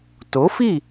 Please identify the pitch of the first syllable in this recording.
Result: rising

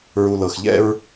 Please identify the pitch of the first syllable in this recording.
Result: low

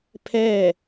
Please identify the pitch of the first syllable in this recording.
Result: falling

